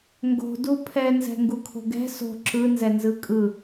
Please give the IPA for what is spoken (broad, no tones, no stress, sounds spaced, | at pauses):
ŋ ɡ o̤ d u pʰ ɛ n z ɛ̤ ŋ ɡ u kʰ o̤ ɡ ɛ̤ s o̤ ǁ ɯ n z ɛ n z ɯ kʼ ɯ